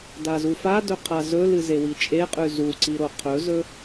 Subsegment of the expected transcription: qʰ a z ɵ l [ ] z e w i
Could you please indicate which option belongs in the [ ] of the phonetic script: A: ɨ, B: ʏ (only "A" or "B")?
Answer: A